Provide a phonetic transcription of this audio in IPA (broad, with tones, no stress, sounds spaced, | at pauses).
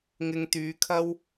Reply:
ŋ ɪ˧ ŋ t̪ yː˨˧ kʰ ɐ˥ w